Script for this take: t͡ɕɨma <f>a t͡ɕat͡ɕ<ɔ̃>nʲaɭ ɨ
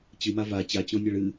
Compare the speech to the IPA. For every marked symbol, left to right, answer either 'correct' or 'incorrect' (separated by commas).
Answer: incorrect, correct